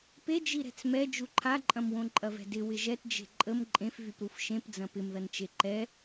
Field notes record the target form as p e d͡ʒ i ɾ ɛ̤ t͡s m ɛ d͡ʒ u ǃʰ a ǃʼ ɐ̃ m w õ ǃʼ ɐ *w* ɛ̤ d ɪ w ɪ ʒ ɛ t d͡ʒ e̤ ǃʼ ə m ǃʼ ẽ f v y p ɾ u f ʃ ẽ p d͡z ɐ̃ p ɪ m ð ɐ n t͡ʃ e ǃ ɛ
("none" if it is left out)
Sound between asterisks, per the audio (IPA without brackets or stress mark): v